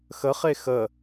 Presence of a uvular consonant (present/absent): present